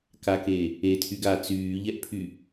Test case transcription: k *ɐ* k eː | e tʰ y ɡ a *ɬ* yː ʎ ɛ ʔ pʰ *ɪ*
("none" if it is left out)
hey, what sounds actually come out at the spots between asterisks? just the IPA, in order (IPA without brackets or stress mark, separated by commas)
a, t͡s, y